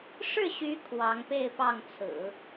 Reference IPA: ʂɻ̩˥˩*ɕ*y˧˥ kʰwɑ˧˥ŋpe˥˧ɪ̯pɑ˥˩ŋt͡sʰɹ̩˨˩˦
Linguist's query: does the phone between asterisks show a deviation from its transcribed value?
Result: no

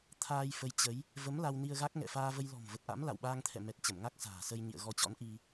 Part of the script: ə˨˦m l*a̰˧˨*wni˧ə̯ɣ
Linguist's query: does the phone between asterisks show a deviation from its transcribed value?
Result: yes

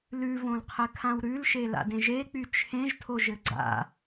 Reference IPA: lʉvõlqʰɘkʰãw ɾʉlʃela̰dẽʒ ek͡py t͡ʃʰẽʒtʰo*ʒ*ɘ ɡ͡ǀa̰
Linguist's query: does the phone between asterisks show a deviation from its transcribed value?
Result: no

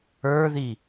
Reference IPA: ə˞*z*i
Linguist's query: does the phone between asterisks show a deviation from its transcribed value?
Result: yes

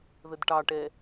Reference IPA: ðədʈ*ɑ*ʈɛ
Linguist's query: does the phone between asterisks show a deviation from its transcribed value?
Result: no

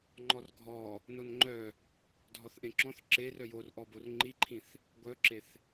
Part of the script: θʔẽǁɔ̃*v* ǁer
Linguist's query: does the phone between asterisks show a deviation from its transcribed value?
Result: yes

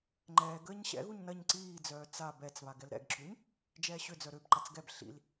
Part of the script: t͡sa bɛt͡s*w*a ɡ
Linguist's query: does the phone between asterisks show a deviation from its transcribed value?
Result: yes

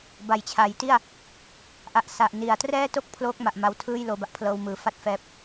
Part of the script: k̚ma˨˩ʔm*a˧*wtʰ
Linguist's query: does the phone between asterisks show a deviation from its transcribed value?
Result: no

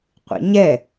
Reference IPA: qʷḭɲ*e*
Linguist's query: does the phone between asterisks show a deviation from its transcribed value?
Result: yes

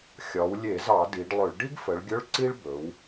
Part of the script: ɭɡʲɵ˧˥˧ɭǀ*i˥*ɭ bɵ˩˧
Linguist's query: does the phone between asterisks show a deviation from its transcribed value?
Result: no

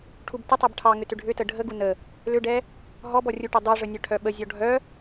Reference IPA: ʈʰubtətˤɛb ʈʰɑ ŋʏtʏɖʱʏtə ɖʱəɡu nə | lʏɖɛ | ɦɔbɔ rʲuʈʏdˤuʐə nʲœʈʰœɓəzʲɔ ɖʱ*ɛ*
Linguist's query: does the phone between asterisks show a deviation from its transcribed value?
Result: yes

